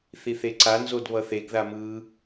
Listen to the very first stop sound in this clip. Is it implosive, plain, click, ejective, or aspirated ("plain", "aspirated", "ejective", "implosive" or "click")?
click